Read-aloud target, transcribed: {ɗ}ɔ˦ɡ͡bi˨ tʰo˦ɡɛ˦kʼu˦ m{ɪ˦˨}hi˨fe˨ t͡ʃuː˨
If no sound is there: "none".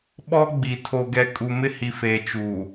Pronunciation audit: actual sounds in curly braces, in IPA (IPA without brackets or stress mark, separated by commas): ɓ, ɪ˦